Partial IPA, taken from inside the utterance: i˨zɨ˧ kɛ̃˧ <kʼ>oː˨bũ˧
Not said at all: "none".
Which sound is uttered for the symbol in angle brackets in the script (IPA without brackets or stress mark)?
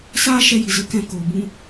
k